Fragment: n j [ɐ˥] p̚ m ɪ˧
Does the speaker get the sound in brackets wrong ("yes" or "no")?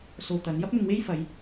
no